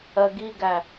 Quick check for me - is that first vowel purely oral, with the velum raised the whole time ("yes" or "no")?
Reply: yes